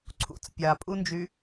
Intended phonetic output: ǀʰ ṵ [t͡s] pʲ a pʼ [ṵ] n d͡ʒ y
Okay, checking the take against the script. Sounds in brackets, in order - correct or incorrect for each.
correct, incorrect: u

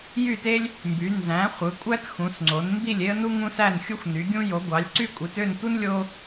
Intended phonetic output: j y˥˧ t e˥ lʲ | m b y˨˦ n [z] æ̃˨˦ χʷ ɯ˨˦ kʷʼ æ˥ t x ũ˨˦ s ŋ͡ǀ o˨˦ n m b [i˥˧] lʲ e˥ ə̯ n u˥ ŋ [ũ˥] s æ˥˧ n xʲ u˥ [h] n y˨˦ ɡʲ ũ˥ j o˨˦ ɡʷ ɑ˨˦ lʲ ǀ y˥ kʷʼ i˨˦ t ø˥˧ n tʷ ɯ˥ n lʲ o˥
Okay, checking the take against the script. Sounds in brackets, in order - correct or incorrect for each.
correct, correct, correct, incorrect: xʷ

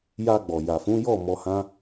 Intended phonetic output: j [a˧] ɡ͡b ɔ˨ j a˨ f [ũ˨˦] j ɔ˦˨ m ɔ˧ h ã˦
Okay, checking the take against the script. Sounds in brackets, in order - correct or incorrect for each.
correct, correct

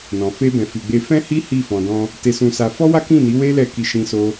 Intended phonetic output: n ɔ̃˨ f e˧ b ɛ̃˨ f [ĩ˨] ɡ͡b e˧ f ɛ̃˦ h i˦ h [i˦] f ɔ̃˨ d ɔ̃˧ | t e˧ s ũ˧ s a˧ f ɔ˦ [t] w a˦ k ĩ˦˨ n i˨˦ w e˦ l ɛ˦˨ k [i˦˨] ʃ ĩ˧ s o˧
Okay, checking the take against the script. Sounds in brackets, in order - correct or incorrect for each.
incorrect: i˨, incorrect: i˦˨, incorrect: none, incorrect: i˧

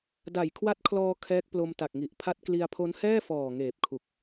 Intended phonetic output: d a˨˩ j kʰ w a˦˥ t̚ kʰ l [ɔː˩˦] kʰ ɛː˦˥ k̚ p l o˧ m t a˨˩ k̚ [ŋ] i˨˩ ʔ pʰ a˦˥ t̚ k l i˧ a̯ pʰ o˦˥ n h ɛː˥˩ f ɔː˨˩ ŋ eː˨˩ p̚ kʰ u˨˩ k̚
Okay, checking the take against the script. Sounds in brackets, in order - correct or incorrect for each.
incorrect: ɔː˧, correct

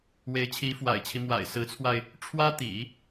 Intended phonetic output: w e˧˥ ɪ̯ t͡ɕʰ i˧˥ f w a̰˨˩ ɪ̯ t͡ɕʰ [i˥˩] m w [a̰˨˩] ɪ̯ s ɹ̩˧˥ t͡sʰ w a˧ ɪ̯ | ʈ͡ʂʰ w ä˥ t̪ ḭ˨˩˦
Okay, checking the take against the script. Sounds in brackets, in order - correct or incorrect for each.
incorrect: i˦, correct

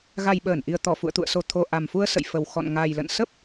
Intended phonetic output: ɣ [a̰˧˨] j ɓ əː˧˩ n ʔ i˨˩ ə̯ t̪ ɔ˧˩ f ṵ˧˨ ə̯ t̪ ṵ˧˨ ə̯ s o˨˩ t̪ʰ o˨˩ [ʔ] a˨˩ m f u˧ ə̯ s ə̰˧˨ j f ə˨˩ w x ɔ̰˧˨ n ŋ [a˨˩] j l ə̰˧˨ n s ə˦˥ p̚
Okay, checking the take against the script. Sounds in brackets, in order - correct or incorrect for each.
incorrect: a˨˩, correct, correct

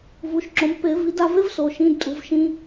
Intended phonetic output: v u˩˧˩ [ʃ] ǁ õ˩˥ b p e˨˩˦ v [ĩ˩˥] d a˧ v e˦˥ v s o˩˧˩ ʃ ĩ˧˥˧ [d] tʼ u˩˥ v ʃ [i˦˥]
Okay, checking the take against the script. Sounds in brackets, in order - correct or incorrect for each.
correct, incorrect: i˩˥, correct, incorrect: ĩ˦˥

